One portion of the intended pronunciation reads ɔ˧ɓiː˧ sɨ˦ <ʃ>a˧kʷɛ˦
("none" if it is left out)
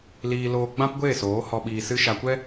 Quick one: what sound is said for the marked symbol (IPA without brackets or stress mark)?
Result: ʃ